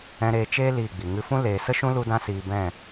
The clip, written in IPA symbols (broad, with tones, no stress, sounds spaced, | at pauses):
ɛ̃˧ ɾ eː˧ t͡ʃ eː˦ l iː˦˨ ɡ͡b i˨ ŋ ɨ˧ f ũ˦ l eː˨ s ə˦ ʃ ũ˦ l u˦ d ã˦ s iː˧ b ɛ̃˦˨